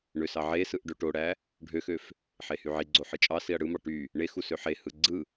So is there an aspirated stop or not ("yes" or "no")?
no